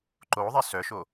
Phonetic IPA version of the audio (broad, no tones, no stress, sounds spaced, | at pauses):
ǃ o ðˤ e s œ ʃ o